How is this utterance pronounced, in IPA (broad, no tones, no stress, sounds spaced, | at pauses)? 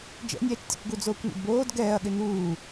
d͡ʒ ɛ̰ nʲ ɛː t͡ʃ tʲ ṵ kʷ ɡ u d͡z oː kʷ n ṵ d b oː d ɡ ɛː ɐ̯ ɠ ɪ n uː